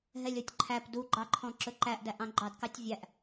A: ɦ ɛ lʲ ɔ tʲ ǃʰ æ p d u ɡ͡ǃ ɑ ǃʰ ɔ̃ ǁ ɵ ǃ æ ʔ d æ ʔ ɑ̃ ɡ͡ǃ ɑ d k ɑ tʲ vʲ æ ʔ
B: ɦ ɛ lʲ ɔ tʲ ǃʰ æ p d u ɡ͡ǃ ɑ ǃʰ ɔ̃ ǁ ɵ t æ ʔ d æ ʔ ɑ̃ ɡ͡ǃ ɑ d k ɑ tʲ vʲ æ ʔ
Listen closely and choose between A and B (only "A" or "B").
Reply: A